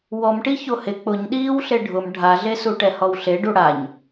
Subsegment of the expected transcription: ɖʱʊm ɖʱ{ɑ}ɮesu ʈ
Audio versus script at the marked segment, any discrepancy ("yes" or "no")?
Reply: yes